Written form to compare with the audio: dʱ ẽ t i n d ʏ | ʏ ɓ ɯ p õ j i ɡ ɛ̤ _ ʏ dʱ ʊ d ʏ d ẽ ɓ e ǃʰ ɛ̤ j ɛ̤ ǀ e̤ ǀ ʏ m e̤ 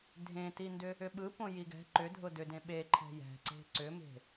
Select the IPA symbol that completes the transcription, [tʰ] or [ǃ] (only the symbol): ǃ